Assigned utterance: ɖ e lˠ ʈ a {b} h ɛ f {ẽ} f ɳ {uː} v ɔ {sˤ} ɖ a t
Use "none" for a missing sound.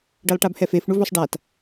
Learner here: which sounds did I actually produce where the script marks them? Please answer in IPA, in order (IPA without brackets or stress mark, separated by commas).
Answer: b, e, u, sˤ